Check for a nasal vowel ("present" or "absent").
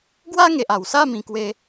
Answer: present